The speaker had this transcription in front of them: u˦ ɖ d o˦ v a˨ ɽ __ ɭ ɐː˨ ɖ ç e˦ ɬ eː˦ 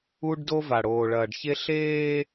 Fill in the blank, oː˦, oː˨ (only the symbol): oː˨